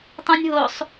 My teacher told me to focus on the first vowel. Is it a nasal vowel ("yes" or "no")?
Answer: yes